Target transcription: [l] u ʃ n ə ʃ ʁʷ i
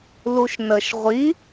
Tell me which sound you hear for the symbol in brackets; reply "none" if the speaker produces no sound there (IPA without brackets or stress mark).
l